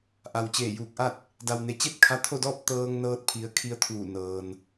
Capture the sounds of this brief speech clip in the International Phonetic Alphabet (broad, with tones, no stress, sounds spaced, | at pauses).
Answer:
ʔ a˩ w t͡ɕ eː˧˩ j uː˧˩ k̚ ʔ a˥˨ t̚ | d a˩ w n e˩ t͡ɕ e˥˨ t̚ kʰ a˧ t̪ʰ o˥˨ d ɔː˥˨ p̚ t̪ ɤː˧ ŋ n ɤː˧ t̚ pʰ i˧˥ ə̯ kʰ i˧˥ ə̯ t̪ʰ uː˧˩ n ɤː˩ n